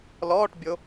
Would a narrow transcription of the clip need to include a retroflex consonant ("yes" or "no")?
yes